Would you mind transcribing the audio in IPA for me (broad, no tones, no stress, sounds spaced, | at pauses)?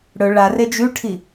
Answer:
ɽ ɵ ɭ a r e d͡ʒ ʉ ʈʰ i